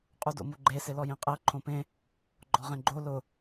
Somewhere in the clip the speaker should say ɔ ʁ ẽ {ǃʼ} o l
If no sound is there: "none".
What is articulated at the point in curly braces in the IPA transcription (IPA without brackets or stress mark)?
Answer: ɡ͡ǃ